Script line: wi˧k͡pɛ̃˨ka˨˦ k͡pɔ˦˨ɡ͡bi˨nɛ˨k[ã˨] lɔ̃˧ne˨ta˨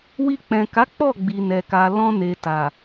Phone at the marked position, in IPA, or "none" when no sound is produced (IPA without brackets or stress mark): a˨